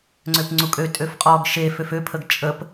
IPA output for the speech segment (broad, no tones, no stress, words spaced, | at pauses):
ŋ͡ǀøpŋ͡ǀukʼø tʼøfqʼɔɡ ʃeføf øpʰəɡ t͡ʃʼəp